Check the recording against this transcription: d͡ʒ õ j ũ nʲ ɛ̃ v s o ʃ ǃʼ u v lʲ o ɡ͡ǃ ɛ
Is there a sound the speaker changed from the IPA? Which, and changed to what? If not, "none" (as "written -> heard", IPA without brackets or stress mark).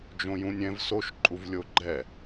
none